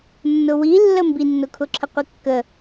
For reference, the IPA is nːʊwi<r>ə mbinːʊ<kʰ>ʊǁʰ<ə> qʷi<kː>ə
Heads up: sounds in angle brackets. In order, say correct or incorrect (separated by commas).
incorrect, correct, correct, correct